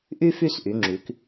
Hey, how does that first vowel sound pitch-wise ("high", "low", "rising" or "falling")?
high